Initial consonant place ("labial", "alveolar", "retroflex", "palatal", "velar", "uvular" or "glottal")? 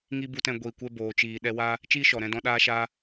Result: velar